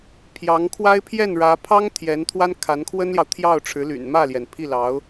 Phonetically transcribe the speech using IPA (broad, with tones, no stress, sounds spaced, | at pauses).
pʰ j ɑ˧˥ ŋ kʰ w a˥ ɪ̯ pʰ j ɛ˥˩ n ɻ ä˧˥ pʰ ɑ˥ ŋ t̪ʰ j ɛ˧˥ n t̪ʰ w a˥ n kʰ a˧˥ n kʰ w ə˥ n l j ɑ˨ ʊ̯ t̪ʰ j ɑ˥˩ ʊ̯ ʈ͡ʂʰ ɻ̩˧˥ l y̰˨˩ n m ä˥˩ l j ɛ˩ n pʰ i˥˩ l ɑ˧˥ ʊ̯